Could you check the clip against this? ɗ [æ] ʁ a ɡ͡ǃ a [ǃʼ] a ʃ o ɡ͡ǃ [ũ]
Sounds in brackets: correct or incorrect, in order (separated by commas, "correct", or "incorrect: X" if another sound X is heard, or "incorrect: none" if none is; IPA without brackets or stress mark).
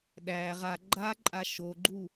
correct, correct, incorrect: u